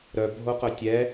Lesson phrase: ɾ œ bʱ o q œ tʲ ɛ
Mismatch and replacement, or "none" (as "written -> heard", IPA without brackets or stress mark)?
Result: none